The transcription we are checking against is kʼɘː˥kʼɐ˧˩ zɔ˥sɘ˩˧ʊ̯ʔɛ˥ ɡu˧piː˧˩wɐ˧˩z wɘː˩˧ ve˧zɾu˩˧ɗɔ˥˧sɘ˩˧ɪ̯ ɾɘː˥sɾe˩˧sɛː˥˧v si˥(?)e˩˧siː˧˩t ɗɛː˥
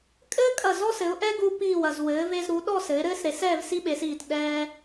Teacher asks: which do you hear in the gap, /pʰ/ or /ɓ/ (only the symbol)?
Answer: ɓ